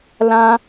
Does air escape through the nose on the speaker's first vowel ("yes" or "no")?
yes